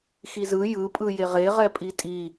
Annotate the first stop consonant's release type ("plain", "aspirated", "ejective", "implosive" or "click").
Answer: ejective